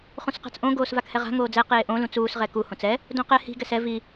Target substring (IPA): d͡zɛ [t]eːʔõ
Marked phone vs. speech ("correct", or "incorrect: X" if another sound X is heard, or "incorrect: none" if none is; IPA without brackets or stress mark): incorrect: q